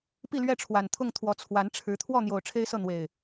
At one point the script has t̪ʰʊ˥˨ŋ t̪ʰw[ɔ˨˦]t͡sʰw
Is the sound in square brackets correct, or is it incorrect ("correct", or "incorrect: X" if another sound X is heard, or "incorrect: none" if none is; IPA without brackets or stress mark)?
correct